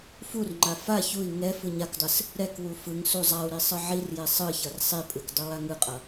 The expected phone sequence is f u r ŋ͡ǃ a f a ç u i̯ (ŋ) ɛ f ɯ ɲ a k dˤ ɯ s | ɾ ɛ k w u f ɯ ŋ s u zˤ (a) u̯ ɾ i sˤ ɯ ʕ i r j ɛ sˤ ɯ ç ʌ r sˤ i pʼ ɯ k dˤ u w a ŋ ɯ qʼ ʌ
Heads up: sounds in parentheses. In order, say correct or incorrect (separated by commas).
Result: correct, correct